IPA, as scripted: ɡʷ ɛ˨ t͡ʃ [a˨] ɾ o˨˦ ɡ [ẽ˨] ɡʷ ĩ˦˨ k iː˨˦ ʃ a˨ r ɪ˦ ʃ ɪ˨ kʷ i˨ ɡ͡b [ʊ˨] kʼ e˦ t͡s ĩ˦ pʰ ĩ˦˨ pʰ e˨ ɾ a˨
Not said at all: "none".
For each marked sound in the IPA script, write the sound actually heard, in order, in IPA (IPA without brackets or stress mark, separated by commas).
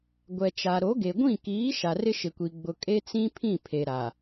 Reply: a˨, e˨, ʊ˨